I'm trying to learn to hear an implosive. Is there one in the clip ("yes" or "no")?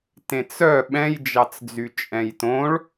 yes